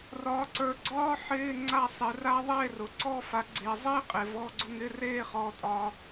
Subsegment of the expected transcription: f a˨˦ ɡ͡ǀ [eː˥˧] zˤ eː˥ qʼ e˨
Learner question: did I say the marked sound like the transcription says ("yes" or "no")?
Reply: no